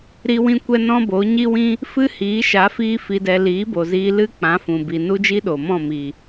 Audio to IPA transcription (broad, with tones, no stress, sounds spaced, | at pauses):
ɾ i˧ w ĩ˧ kʷ ɛ˧ n ɔ̃˦ b o˨˦ ɲ i˦ w ĩ˦ | f ɨ˦ h iː˨˦ ʃ a˨˦ f iː˦ f i˧ d ɛ˧ l iː˨˦ b o˨ z iː˧ l ɨ˦ k͡p ã˨˦ f ũ˨ b i˨ n u˦ d͡ʒ i˦ ɗ o˨ m ɔ̃˦˨ m i˨